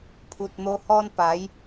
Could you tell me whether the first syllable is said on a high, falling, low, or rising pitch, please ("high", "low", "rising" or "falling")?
low